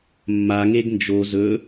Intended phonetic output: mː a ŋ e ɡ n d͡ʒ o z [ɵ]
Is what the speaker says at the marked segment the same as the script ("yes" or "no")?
yes